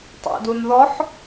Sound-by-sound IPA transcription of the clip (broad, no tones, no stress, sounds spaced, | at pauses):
tˤ ḛ d u n ð ɔ ħ